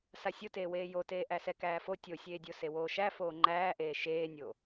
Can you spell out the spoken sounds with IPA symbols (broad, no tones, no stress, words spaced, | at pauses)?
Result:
sasʲoteːweː joteː ʔæsɛkæːfo tʲosʲeːdʲo sewoːʃæ foːŋ͡ǃæːʔeː ʃeːnʲo